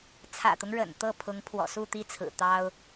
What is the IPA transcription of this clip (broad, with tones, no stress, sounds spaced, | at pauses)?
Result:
t͡sʰ ä̰˨˩ t̪ ʊ˦ ŋ ɻ ə̰˨˩ n t̪ ɤ˥˩ pʰ ʊ˧˥ ŋ pʰ w ɔ̰˨˩ s u˥˩ t̪ i˥ t͡sʰ ɹ̩˨˩ t̪ ɑ˥ ʊ̯